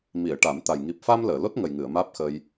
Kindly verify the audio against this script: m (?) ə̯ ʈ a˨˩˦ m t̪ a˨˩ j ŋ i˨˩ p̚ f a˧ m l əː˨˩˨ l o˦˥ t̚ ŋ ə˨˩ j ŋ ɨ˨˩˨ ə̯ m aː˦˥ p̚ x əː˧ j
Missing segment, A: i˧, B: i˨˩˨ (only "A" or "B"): B